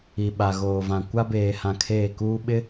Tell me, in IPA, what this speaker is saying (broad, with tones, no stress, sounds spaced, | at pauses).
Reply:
i˨ ɓ a˨ ɣ oː˨ v ã˨ kʷ a˦ b eː˨ h ã˨ kʰ eː˦˨ k uː˦ ɓ ɪ˦